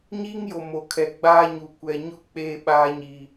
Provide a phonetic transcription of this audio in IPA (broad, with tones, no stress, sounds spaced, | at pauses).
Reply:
ɲ iː˦ ŋ j o˨ m o˨ kʰ ɛ˨ ɡ͡b aː˦ ɲ u˨ kʷ ɛ˨ ɲ ʊ˦ k͡p eː˦ ɓ aː˦ ɲ i˨